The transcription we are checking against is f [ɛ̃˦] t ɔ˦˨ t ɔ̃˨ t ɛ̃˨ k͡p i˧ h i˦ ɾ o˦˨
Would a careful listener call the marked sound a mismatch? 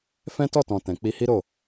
no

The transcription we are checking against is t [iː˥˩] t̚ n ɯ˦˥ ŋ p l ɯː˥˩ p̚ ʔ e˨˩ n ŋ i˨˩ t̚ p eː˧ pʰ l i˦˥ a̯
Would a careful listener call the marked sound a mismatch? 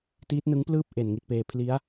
yes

